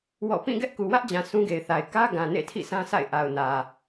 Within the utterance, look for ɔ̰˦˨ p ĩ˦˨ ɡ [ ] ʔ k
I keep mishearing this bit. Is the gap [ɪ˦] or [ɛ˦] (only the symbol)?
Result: ɛ˦